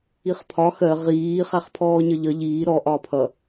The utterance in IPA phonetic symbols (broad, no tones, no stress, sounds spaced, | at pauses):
i χ pʰ ɒ x ɜ ʁ iː χ æ χ pʰ ɔː ɲ ʌ ʎ ʌ ʎ iː ɾ ɔ ʔ ɒː pʰ ʌ